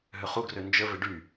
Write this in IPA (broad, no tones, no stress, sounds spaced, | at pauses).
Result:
ɦ ø χ u ɡ r ø n d͡ʒ ə v ɪ ɖ y